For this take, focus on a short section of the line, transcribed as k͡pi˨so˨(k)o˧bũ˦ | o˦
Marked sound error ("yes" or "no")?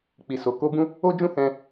no